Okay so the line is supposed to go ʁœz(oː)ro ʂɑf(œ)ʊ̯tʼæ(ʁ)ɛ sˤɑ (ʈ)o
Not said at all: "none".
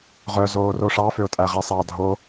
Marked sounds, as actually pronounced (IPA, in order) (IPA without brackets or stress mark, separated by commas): oː, ø, ʁ, dʱ